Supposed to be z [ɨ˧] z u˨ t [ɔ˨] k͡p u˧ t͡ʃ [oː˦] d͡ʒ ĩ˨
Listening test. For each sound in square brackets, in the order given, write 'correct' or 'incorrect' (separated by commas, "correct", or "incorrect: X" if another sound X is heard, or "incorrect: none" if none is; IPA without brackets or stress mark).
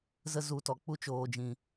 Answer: incorrect: ə˧, correct, incorrect: oː˨